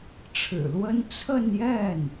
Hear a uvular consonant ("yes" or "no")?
no